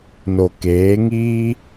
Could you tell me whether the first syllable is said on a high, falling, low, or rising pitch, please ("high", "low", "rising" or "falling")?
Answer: low